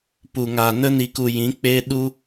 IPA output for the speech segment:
pu˨ŋa˨nə˦ ni˨ku˨ jĩ˨˦k͡pe˦ ɗu˦

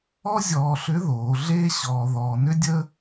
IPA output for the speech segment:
ɔ˥zʲɔː˧ɬʏ˧˥ðoː˩˧ ɮeː˥ɕɔː˧ ðɔː˧nʏ˥dʲəː˥

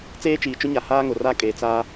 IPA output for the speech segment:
t͡seː˦t͡ʃiː˨t͡ʃʊ˦ɲa˨ haː˦ŋʊ˨ra˦ kʼe˨˦t͡sa˦

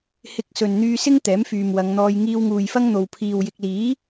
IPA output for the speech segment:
hɪ˧k̚ sɵ˨nn̪yː˧sɪ˥ŋ t̪ɛː˨˥mfyː˨mwɐ˨˧ŋn̪ɔː˧j ŋiː˧wŋuː˨jfɐ˥ŋn̪o˨w pʰiː˨w jɪ˨k̚liː˨˥

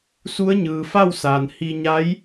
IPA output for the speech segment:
su˧˥ə̯ɲɯː˩ fa˥˨wsaː˩n hi˧ ɲa˧˥j

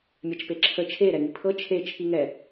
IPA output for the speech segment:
mʲat͡ʃpeǁʰə t͡ʃʰe ɾɛŋipʰɤ t͡ʃʰe t͡ʃʰiŋɛ

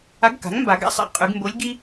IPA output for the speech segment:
a˧˥ɡka̤˩˥ŋmba˨˩˦ɡa̰˥ sˤḭ˦˨ qʼʉ˨˩˦ɡmbo˧˥lʲɡi˥

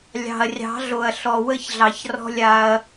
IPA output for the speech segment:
lʲɑ̤˨ɐ̯rʲɑ̤˨˦ ɮo˨ɐ̯ɬɔ˨ wə˦˨çɮɑ˨çrɔ̤˧ lʲa˧ɐ̯

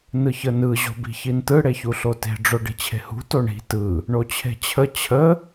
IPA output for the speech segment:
nɯçənɯ ʑo̤bi̤çintɯ ɽeçuɬote̤ ɖ͡ʐoɖi̤t͡ɕʰe̤hṳ toɳi̤ tɯ | ɳot͡ɕʰe̤t͡ɕʰə t͡ɕʰə

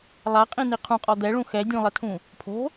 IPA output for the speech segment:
lˠaqʼĩni qʰũqʼɔ d̪ɛɭũ xɛ dʲũlˠɘtʰũ | pʰo̤

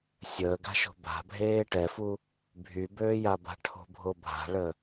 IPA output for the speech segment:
sʲəːɡa̤ʃo̤ ba̤bʱeː ʈɛfu | bʱybøːjaba̤ ʈʰo̤bʱobʱa̤ɭə

